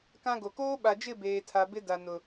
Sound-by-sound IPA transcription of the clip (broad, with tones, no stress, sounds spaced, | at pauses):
k ã˦ ɡ o˨ k oː˦ ɓ a˨ d͡ʒ ɪ˦˨ b eː˨ tʰ a˨ b ɪ˦ d a˨ n ʊ˨